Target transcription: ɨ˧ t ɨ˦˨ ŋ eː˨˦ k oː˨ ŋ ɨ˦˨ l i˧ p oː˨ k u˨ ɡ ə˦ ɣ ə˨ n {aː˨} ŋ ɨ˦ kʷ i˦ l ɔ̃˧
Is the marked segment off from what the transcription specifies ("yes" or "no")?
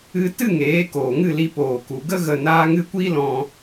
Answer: yes